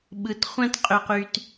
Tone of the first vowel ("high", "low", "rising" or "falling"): low